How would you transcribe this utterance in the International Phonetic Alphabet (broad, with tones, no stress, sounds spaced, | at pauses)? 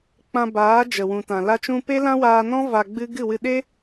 k͡p ã˧ b aː˨˦ d͡ʒ ə˨ w ũ˨ t ã˨ l a˧ t͡ʃ ũ˧ p e˦ l ã˦ w aː˧ n ɔ̃˦ v a˧ ɡ͡b ɨ˦ ɡ ɨ˦˨ w ɨ˧ ɗ e˦